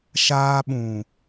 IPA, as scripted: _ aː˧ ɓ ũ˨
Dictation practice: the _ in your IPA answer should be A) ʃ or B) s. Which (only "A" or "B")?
A